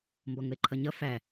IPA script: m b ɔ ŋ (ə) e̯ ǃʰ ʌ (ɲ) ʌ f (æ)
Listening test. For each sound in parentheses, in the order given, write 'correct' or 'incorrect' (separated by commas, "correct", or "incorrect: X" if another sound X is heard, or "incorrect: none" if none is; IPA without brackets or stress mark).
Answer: correct, correct, correct